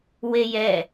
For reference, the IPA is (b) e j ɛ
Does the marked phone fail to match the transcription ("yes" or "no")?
yes